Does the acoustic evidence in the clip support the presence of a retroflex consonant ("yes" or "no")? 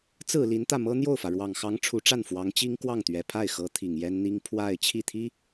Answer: yes